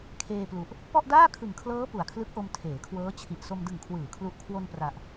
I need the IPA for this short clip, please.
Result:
kʰ eː˧ p l u˨˩ ʔ | p ɔ˥˩ ʔ d aː˥˩ kʰ ɯ˨˩ ŋ kʰ l ɤː˦˥ p u˨˩ a̯ kʰ l ɯ˦˥ k̚ ʔ o˧ m tʰ eː˩˦ kʰ w ɤː˦˥ t͡ɕʰ i˨˩ ʔ s o˧ m d ɯ˨˩ ŋ kʰ w ɯː˩˦ kʰ l u˨˩ ʔ kʰ w o˧ n p r a˨˩ ʔ

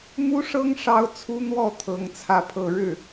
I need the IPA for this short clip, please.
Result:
m u˥ ʂ ɤ˥ ŋ ʂ ɑ˥ ʊ̯ t͡sʰ u˥ n̪ w ɔ˥˩ t̪ʰ ɤ˧˥ ŋ t͡sʰ ä˥˧ pʰ ɤ˥˧ ɻ ɻ̩˥˩

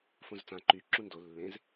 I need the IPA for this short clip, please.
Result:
f õ z t͡s ã ǃ y ǁ ũ n d o lː ẽ z

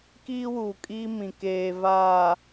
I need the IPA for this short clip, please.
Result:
k iː˦ w uː˨ kʼ iː˦ m ĩ˨ k eː˨ v aː˨

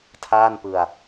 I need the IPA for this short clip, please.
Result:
tʰ aː˥˩ n p ɯ˧ a̯

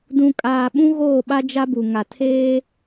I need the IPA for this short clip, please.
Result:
d ũ˨ kʼ aː˨ ɓ ũ˦ ɣ oː˦˨ ɓ a˦ d͡ʒ a˦ b u˨ ŋ a˨ tʰ eː˦

